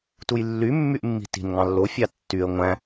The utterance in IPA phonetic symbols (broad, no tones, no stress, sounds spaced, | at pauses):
t u j lː y mː y ʔ mː i̤ t i̤ n ŋ ɑ̃ lː o fʲ ɑ tː y ə̯ ŋʷ æ̃